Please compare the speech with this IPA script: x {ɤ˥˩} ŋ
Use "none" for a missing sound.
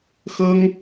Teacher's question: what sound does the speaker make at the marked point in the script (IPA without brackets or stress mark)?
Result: ɤ˥